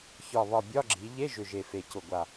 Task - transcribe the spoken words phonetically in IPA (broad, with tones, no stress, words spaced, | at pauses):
çɒ˨˩βɒ˨˩ bʲɒ˧˥˧ɡ͡ǁi˩˧ ʎe˧˥˧ʒʏ˨˩ ʒe˨˩fe˨˩cʊ˨˩ɡʷa˨˩